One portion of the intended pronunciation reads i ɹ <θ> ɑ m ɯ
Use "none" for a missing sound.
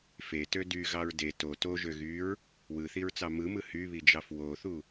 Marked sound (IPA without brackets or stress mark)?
t͡s